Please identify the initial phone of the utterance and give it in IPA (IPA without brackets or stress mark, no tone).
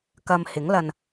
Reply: k